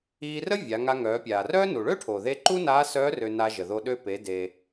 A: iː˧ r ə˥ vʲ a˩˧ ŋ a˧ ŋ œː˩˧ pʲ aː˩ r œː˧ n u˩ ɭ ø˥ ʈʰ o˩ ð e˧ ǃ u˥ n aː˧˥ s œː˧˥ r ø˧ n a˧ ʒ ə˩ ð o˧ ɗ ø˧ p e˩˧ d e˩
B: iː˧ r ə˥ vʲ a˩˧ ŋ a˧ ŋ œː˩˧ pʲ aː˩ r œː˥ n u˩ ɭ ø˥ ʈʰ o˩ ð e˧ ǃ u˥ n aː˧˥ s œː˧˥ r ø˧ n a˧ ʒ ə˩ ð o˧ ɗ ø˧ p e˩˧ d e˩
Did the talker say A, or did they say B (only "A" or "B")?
B